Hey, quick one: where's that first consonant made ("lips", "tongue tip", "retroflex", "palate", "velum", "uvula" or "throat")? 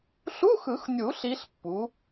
tongue tip